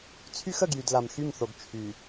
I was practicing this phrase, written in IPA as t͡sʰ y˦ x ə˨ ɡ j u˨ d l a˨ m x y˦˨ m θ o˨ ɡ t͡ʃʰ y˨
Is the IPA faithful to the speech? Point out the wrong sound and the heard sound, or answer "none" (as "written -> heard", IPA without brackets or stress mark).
u˨ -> y˨